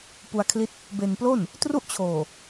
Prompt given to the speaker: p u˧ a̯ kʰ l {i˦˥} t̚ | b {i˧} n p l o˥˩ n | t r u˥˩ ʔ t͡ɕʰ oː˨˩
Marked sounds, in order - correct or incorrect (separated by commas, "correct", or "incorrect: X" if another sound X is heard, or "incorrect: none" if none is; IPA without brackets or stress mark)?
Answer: correct, incorrect: e˧